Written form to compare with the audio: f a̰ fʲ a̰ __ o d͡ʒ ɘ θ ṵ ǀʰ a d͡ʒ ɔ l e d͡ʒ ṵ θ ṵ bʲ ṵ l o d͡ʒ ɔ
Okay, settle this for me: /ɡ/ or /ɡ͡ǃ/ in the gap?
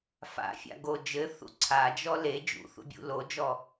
ɡ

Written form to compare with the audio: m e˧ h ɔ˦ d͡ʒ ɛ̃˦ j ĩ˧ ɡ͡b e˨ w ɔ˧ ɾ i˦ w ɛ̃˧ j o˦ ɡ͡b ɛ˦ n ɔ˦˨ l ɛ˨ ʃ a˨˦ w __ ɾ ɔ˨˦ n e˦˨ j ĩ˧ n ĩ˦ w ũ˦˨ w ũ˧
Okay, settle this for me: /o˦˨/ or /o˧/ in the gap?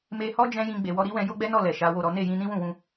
o˦˨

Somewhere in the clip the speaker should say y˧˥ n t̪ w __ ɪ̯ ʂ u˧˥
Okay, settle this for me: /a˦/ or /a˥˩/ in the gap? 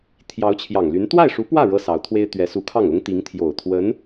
a˥˩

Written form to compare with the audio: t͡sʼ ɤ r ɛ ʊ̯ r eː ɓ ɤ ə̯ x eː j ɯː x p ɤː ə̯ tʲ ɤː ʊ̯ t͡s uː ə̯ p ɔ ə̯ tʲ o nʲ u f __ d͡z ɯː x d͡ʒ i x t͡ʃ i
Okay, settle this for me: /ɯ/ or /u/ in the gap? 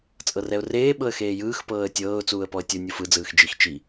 ɯ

